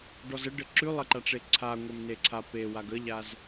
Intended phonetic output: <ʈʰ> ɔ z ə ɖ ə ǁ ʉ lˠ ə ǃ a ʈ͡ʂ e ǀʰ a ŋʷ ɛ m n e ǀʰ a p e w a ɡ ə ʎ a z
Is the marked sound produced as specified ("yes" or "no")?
no